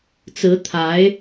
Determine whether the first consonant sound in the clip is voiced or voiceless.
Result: voiceless